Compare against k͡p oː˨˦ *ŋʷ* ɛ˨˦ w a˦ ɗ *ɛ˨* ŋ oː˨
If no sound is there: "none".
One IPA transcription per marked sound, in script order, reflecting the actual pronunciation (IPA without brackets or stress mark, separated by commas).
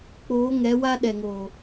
ŋ, ɛ˨